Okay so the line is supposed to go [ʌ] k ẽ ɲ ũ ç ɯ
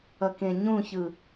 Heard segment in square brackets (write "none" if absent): ʌ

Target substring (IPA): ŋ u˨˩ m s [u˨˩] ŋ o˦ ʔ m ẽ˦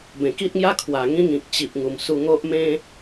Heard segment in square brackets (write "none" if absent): u˧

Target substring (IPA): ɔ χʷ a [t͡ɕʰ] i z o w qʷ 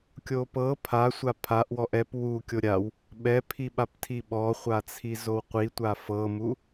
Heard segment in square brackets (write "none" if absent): t͡sʰ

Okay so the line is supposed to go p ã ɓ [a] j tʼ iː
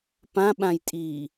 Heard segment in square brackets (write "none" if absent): ã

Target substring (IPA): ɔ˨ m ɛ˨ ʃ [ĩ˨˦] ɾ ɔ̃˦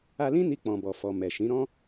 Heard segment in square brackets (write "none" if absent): ĩ˨˦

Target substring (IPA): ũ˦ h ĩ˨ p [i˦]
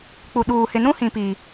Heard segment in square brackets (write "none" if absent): i˨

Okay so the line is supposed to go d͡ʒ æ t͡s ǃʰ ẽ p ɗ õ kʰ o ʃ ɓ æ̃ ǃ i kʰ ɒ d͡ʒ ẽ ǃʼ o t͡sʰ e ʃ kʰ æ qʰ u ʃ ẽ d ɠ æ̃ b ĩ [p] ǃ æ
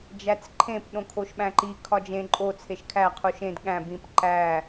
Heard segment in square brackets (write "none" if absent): p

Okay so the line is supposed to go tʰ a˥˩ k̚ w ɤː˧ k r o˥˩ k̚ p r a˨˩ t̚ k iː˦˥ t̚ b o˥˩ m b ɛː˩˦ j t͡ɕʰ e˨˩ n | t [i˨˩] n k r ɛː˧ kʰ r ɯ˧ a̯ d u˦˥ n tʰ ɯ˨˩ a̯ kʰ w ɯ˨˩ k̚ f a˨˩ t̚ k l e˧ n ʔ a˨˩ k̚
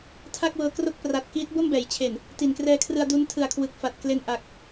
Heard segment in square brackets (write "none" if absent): i˨˩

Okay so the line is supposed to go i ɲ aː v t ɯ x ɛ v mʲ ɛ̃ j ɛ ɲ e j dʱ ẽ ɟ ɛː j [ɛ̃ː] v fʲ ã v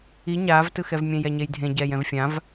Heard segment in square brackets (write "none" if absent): ɛ̃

